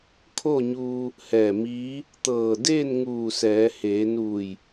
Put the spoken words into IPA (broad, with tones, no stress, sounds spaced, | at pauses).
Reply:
kʰ o˥˨ ɲ uː˧ | h ɛː˧˩ m iː˧˥ | t̪ ɤː˧˩ d eː˥˨ n ŋ uː˧˩ s ɛː˩˧ h eː˩˧ n uː˧˩ j